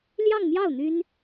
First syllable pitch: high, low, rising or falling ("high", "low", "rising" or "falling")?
falling